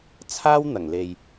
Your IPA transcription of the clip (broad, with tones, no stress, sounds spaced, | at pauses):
t͡sʰ aː˥ w n̪ ɐ˨˩ ŋ l e˨ j